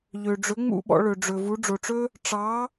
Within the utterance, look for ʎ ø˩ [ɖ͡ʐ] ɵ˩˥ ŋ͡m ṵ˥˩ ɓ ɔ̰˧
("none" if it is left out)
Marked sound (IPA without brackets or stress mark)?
ɖ͡ʐ